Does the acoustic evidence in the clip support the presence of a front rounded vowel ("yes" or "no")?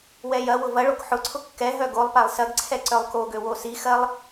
yes